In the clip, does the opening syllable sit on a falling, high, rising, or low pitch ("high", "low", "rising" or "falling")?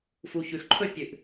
low